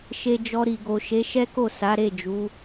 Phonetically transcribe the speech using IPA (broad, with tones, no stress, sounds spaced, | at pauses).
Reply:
ʃ e˧ d͡ʒ ɔ˧ ɾ i˨ ɡ o˨ ʃ e˨˦ ʃ ɛ˦ k o˦˨ s a˨˦ ɾ e˦˨ d͡ʒ u˨˦